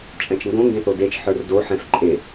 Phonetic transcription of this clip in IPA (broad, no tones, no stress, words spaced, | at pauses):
t͡ʃʼɛ̃t͡ʃŋɡõ ŋɡẽθodet͡ʃ ħə˞rdo ħɛ̃fǃʼe